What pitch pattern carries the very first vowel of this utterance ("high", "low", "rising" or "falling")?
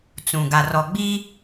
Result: low